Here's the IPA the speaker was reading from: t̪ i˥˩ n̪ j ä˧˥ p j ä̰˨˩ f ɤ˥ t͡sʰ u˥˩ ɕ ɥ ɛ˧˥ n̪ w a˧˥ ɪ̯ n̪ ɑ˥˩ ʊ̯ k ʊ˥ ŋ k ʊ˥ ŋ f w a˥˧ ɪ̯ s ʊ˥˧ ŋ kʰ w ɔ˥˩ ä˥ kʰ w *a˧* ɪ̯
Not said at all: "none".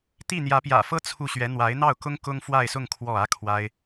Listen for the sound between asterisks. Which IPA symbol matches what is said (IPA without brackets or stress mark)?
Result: a˥